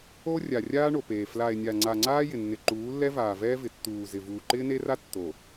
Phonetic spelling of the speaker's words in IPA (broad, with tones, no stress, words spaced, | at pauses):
o˦ rʲa˨ rʲaː˦ɳo˨peː˨ fla˨e̯nʲa˨ŋ͡ǀa˨ ŋ͡ǀaː˦jɪ˨nːɪ˨ ǃuː˨˦lːɛ˦vaː˨ vɛː˦vɪ˨tːuː˨zɪ˨ vuː˨ǃɪː˦ne˦ra˦ tːo˨